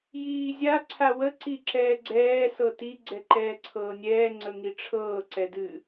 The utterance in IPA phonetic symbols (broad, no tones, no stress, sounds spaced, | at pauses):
j iː zʲ a ǀʰ a w ə ǀ i ǁ ɛː ɡ͡ǀ ɛː s ɤ t i ɡ͡ǀ ɛ ǃ ɛː ǀʰ ɤː nʲ ɛː ŋ͡ǀ ə ŋ i ʈ͡ʂʰ ɤː ǀ ɛ d ɨ